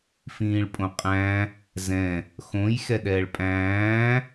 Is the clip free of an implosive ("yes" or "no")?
no